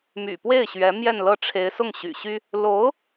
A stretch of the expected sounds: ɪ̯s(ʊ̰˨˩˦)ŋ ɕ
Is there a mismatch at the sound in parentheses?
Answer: yes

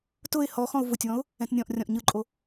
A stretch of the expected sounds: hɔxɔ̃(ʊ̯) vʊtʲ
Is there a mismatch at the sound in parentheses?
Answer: no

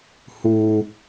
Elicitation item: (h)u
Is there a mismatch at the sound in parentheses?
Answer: no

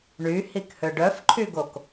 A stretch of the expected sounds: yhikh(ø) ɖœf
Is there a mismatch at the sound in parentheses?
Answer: no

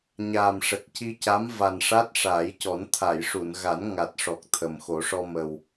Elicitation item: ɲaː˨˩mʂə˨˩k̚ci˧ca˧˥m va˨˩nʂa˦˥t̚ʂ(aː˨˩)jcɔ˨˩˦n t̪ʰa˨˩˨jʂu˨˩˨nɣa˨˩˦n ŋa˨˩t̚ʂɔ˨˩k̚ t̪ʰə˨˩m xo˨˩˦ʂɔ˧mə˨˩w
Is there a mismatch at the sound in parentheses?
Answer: yes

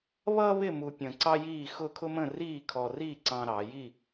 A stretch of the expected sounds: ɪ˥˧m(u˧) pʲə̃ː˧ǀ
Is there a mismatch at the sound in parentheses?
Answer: no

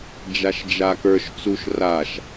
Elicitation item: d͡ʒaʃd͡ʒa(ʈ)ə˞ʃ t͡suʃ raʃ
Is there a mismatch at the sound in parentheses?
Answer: yes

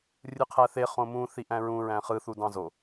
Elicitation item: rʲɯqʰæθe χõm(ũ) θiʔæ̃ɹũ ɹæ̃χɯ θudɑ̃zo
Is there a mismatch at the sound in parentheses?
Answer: no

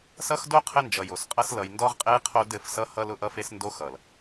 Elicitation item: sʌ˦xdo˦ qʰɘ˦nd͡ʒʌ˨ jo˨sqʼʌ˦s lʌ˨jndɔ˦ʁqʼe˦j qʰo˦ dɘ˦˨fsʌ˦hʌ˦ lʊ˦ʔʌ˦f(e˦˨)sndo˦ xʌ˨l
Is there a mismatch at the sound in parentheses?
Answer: yes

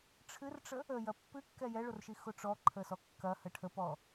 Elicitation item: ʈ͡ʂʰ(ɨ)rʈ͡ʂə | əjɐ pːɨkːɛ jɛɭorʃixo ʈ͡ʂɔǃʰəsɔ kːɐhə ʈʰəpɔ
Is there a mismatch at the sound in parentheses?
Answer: no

